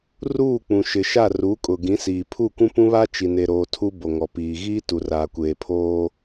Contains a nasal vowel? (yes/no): yes